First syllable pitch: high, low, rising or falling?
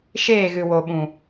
falling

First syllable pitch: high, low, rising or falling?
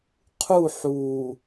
falling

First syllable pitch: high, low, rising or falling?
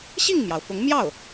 falling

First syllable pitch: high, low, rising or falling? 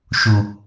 low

